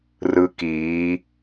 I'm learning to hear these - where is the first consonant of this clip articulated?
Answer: tongue tip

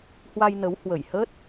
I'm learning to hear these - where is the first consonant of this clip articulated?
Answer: throat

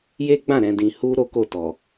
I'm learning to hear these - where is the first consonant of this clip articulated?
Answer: palate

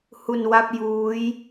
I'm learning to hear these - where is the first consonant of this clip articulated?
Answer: throat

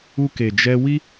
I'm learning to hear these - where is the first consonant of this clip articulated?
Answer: velum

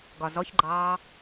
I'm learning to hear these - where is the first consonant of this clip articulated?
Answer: velum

